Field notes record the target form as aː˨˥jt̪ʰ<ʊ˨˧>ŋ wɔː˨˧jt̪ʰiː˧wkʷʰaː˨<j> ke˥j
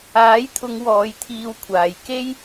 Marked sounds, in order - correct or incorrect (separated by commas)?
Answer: correct, correct